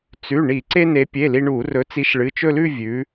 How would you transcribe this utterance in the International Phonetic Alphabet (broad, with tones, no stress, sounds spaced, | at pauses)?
t͡s ʉ˩˧˩ ɳ i˧˩˧ ǀ e˧ n e˩˧ pʲ e˩˧˩ l i˧ ɳ u˧˩˧ r ɵ˨˥ t͡s i˨˥ ʃ ɭ ɨ˩˧˩ t͡ʃ ɵ˥˧ l ʉ˥˧ vʲ ʉ˩˧